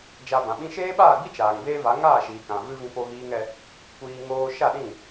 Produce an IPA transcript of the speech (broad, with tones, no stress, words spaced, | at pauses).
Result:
d͡ʒa˧bã˨ɓĩ˦ ʃeː˦ɓaː˦˨ɡ͡bi˦ t͡ʃaː˨ŋbeː˦va˨˦ ŋaː˦˨ʃiː˨ kã˨vɨ˦ vĩ˦po˦ɣiː˦ŋɛ˦ | kʷiː˧ ŋoː˧ʃa˦˨ɗĩ˦˨